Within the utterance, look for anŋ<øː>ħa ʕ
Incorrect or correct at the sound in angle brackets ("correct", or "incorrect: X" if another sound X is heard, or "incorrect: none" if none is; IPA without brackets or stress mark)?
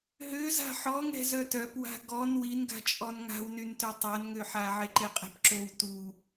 incorrect: ø